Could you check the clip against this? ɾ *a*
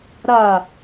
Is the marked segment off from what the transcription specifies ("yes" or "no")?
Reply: no